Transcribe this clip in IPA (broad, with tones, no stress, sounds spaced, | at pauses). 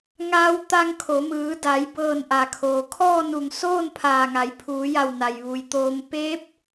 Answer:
ŋ aː˧ w t̪ a˧ ŋ kʰ o˩˧ m ɯː˩˧ d a˩˧ j b ɤː˧˩ n ʔ a˩ kʰ oː˩ kʰ ɔː˥˨ n u˧˩ ŋ s oː˥˨ n pʰ aː˧˩ ŋ a˩˧ j pʰ uː˩˧ j a˧˩ w n a˩ j ʋ u˩ j t̪ oː˧ m p eː˧˥ p̚